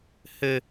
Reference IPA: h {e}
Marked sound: incorrect: ɘ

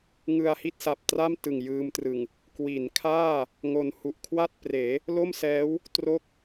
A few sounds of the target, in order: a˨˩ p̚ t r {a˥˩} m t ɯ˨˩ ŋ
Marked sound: correct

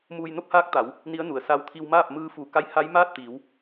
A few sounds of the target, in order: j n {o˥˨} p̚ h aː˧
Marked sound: correct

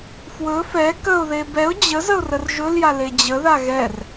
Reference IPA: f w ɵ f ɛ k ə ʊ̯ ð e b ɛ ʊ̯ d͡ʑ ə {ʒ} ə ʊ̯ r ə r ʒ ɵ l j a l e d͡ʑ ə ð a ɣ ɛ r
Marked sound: incorrect: z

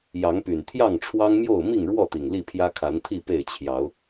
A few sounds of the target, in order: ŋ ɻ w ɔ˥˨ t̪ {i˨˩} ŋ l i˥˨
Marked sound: correct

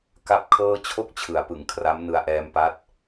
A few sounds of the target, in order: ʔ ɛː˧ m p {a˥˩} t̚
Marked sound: incorrect: a˦˥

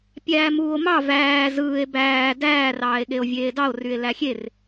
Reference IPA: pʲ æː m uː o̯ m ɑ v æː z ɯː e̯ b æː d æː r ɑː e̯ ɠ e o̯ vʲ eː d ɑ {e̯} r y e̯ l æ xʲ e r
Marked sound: incorrect: o̯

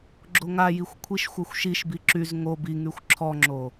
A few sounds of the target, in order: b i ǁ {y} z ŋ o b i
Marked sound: correct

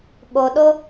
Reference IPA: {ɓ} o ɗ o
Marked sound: correct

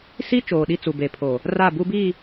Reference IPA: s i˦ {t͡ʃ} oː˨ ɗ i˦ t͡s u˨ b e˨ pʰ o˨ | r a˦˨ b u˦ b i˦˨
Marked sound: correct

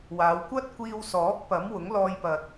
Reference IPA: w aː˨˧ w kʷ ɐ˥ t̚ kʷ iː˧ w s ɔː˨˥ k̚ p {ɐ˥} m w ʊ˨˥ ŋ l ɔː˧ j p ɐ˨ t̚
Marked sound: incorrect: ɐ˨˥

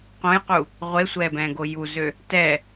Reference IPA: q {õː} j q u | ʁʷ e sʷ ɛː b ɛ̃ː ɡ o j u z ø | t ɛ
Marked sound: incorrect: õ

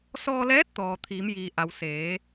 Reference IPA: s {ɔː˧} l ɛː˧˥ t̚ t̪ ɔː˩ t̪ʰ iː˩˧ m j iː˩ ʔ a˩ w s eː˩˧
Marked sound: correct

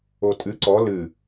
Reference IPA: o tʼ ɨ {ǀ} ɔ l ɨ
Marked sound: correct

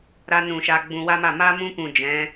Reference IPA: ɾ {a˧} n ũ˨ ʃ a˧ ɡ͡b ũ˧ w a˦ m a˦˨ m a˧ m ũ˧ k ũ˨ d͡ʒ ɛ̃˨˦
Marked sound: correct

